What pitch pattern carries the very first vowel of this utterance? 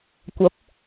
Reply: rising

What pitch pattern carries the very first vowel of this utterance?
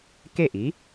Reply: falling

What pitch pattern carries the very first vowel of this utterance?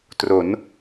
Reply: rising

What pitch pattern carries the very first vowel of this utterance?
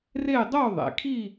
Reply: falling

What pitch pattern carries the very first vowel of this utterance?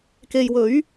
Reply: low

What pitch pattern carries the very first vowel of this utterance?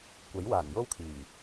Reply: rising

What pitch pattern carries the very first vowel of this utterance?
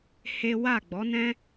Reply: high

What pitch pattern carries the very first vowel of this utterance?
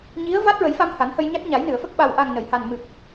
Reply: rising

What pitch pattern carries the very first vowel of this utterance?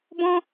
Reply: high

